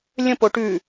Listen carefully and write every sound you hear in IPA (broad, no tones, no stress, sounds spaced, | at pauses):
lʲ ə̃ p o ʈ ʉ